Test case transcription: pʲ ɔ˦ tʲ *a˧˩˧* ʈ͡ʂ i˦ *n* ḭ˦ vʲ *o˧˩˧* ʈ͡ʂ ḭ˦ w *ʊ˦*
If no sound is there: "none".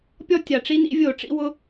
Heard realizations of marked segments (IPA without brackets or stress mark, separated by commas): a˩, n, o˧˩˧, ʊ˦